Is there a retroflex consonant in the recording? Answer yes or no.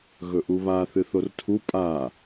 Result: no